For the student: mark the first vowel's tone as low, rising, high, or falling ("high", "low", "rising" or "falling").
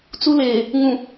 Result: high